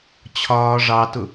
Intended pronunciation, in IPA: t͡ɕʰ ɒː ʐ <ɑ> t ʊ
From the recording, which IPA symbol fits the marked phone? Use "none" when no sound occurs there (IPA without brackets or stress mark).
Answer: ɑ